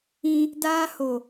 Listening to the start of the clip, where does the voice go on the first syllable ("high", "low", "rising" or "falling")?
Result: high